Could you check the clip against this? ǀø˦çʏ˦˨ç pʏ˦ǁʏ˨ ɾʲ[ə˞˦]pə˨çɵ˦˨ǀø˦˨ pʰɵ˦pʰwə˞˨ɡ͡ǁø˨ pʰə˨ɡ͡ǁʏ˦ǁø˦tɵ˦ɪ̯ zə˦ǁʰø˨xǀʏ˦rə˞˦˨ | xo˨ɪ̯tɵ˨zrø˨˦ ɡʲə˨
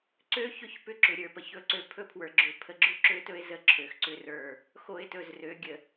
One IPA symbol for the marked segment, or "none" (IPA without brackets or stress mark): ə˞˨